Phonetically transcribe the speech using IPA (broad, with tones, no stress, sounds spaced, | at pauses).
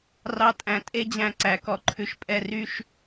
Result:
r ɑ˦ tʼ æ̃˧ tʼ e˦ d͡ʑ æ̃˧ ǀ æ˨ k ɔ˧ ǃʰ ʉ˧ ʃ pʼ ɛ˧ r y˦ ʃ